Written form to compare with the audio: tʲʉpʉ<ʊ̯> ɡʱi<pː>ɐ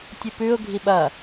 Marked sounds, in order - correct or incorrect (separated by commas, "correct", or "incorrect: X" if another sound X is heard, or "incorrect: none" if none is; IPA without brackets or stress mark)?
correct, incorrect: ɓ